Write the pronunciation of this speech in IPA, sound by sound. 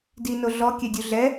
d i n o ɮ ɔ kʲ ɛ dʲ u ɮ ɛ

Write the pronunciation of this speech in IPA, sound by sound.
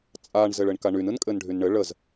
t͡sʼ a ɳ z ɘ ɭ ɘ ɳ k a ɳ y n ɯ n kʼ ɘ n ɖʱ y n ɳ ɘ ɭ ə z

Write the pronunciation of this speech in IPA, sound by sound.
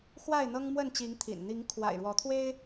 x w a˥˨ ɪ̯ n̪ ɤ˦ ŋ m w ə˥˨ n t͡ɕ i˨˦ ŋ t̪ʰ ḭ˨˩ n n̪ i˨˦ ŋ kʰ w a̰˨˩ ɪ̯ ɻ w ɔ˨˦ t̪ʰ w e˦ ɪ̯

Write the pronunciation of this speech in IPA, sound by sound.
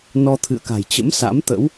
n ɔ˧ t̪ʰ ɨ̰˧˨ ə̯ k a̤˨˩ j t͡ɕ ə̰˧˥ m s a̰˧˥ m t̪ ə̰˧˥ w

